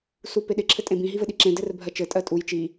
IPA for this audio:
s u p e ɗ ɪ ǁʰ ɘ tʼ ẽ b ĩ ɦ i v ɘ ɗ i ǁ ẽ d ɘ r bʱ ɜ t͡ʃ ɘ tʼ ɜ tʼ u j t͡ʃ i

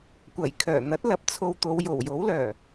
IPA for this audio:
kʷ ɐ˨˩ j kʰ œː˨˩ n̪ ɐ˨˥ t̚ l ɐ˨˥ p̚ t͡sʰ o˧ w t̪ o˨˧ w j o˨˩ w j o˨˥ w l œː˨˩

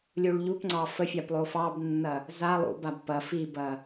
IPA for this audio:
lʲ u ɭ ʎ u p ŋ͡ǀ ɑ f ə fʲ a p lˠ o f ɑ b nː ɐ | z a lˠ ṵ b a b p ɐ f i b ɐ

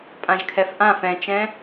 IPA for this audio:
pʼ ã ʒ kʰ ɛ f ʔ ã f ɛ̃ t͡ʃ ɛ̃

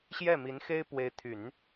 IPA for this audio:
ɕ j ɛ˥˩ m i˧˥ n x e˥ ɪ̯ p w e˧˥ ɪ̯ t̪ʰ y˨˩˦ n

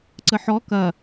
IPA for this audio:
ǀ ə ħ ɔ k ɐ

